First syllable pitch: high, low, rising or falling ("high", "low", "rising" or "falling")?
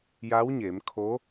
rising